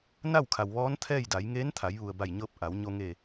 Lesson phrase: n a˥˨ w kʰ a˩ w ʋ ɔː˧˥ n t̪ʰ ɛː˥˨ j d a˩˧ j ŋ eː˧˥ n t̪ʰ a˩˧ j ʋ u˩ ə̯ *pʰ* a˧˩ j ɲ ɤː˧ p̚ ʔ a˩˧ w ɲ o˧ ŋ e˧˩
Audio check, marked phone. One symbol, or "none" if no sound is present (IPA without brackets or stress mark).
b